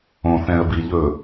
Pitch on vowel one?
low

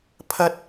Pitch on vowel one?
high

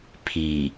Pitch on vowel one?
low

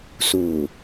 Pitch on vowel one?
low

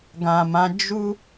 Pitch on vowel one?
low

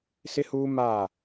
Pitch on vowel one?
high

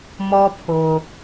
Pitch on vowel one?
high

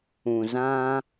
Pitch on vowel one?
low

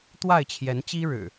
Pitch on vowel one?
falling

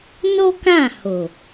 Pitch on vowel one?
high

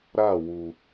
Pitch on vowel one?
falling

